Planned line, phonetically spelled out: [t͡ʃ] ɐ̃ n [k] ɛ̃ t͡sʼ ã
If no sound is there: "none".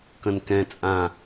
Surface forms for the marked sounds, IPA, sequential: k, k

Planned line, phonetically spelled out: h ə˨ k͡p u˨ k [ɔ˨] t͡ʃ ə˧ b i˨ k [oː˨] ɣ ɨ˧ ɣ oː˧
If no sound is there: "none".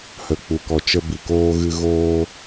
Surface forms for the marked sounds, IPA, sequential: ɔ˨, oː˧

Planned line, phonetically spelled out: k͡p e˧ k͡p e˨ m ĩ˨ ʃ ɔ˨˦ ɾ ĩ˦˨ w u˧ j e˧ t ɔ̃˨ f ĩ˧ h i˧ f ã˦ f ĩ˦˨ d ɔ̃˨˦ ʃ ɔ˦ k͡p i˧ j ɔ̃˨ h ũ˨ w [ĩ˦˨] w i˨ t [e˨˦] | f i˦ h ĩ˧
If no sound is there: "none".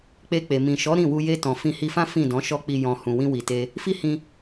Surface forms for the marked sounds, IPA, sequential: ĩ˧, e˧

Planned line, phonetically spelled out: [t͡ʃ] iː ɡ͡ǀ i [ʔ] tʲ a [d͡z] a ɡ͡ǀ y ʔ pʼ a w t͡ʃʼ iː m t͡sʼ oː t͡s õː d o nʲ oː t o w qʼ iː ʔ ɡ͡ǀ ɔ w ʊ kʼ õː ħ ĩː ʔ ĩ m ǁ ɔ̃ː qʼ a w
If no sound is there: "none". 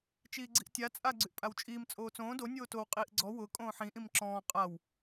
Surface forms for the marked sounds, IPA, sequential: t͡ʃ, ʔ, t͡sʼ

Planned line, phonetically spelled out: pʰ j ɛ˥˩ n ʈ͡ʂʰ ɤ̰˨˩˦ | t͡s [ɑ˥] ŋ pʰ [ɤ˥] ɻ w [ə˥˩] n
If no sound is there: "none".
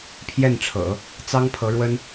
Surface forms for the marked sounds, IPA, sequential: ɑ˥, ɤ˧˥, ə˥

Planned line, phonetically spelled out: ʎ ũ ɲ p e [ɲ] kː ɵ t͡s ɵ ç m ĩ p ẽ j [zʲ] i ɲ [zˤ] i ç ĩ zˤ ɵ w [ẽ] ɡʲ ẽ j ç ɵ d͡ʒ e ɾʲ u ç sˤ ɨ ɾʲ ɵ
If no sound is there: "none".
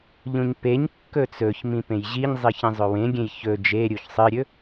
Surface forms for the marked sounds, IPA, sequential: ɲ, ʑ, zˤ, ẽ

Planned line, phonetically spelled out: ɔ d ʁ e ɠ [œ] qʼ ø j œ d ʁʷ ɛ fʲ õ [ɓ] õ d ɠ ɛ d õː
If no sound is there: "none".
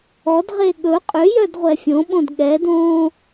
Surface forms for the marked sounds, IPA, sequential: ɵ, ɓ

